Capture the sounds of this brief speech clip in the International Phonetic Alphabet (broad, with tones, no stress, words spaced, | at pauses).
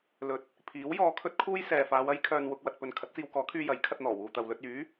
lɵ˨˥t̚ | pʰiː˨˥wjɔː˧kʰɵ˥t̚kʰuː˥j sɛː˨faː˨˧wɐ˥j kʰœː˧nwʊ˧k̚ wɐ˨t̚pɵ˨n kʰɐ˨˥t̚t͡siː˧wkɔː˨˥kʰyː˧ jɐ˨˥j kʰɐ˧t̚n̪ɔː˨˩ wuː˨t̪ɐ˨wlɵ˧t̚ yː˨˥